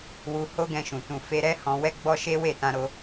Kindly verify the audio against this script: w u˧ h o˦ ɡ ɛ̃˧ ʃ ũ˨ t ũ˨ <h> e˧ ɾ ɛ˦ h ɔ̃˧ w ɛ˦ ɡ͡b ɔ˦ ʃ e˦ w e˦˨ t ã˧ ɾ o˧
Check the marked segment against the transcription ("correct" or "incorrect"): incorrect